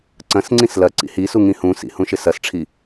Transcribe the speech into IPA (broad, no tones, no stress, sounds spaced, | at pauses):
ǀ ɐ̃ s ŋ͡ǀ ĩ s l ɐ ǀ ḭ h i s u ŋ ĩ h ũ s ḭ h ũ ʃ ɪ s ɐ s ʈ͡ʂʰ i